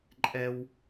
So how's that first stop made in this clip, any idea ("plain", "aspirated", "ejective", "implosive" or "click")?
click